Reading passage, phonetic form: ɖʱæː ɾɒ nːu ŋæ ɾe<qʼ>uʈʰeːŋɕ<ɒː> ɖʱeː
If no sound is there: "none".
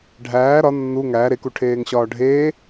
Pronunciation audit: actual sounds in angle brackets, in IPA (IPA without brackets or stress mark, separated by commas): k, ɒː